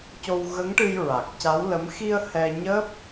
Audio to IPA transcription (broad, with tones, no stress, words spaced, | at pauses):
co˧wɣə˧˥ŋʈɨ˧j ɹa˨˩k̚ca˧˥wlə˧˥m xi˧ə̯ hɛ˧ ɲəː˦˥p̚